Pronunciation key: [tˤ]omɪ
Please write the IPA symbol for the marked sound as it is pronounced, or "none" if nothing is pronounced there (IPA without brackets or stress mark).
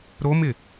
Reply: ɾ